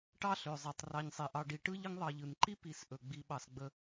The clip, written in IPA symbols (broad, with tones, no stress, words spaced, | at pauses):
ʈɑ˥ɬø˩ zˤɛ˩tˤ rɑ˨ɲsˤi˩ʔɑ˨ ɖi˨ʈɯ˥ ʎə˦ŋðˤɑ˨ʎɯ˩nǃi˥ pi˨sʔɵ˩ ɡ͡bi˨ɓɑ˩s ɡ͡bə˨